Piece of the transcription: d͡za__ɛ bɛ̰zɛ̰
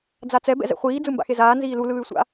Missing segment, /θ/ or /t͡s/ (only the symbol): t͡s